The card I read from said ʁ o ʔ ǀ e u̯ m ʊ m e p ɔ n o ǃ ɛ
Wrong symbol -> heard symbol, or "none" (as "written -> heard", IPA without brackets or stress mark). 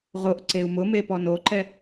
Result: none